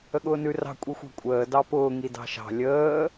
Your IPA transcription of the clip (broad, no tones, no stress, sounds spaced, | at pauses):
ə ɠ ʊː n ʉ r ɑ̤ kʷʼ i xʷ ɑ̤ kʷʼ əː d ɑ p ʊː ŋ i d ɑ̤ ʃ ɑ̤ lʲ əː